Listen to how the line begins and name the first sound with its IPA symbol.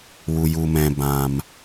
w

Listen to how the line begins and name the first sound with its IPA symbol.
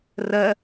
r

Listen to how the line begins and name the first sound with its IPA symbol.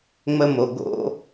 ŋ͡m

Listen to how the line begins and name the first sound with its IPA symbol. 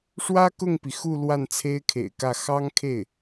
ʂ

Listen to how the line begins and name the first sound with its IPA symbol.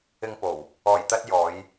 ɪ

